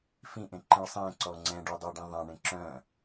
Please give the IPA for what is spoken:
fĩʔẽǃĩɭ sˤẽǀɔ ŋ͡ǀɛ̃ɖʉdˤʉɐ̯ɖĩ ðˤɛ̃ɳẽ ǁœ̃

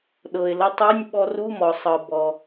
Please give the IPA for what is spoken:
ɗɤ˩ɪ̯lə˧tˤu˧˥˧nʲ ɓɔ˧ru˧˥˧mɔ˩sˤɤ˩ bɔ˩

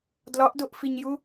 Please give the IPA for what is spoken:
dlɒʔdoʔfiɲju

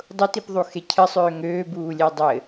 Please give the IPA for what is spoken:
dˤʊtipðˤuxe cʰɘsˤøː ŋøːbuːlʲe dˤɘ

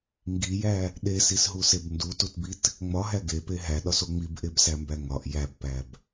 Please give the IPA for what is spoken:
ŋɡijæ | ɗesisɦuseb ndututbit | ŋ͡mɒɦæ ɡepe ɦæɗɒso ŋ͡mibʔebsæmbæ ŋɒʔ jæbpæb

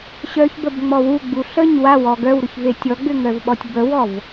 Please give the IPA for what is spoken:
ɕœçbəbŋ͡mɔ wuɡ͡bu ɬəɲ wawɔ ɡœwɾʊçve tʲɔɡ͡bʏŋœvɓɔtʲ bəwɔv

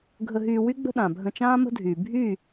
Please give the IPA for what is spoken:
ɡʱə˧ɦyː˧ wy˦ɡ͡bə̤˦ɗã˨ bʱə̃˧t͡ʃãː˦mə̤˦dʱyː˨ bʱy˦˨

